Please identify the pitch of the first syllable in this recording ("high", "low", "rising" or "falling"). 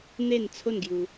falling